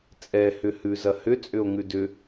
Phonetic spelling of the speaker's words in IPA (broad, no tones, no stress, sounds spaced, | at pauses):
t͡sʼ ɛ h ʏ h ʉ z ɐ h ʏ t͡sʼ ʏ o̯ ŋ ʉ d ʏ